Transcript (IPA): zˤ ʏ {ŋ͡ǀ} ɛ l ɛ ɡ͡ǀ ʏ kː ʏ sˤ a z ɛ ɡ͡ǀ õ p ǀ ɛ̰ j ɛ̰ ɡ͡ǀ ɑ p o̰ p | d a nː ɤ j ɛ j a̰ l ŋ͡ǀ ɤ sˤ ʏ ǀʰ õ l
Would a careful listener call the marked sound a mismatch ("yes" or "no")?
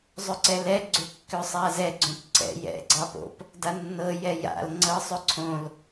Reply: yes